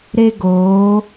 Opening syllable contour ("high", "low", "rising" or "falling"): high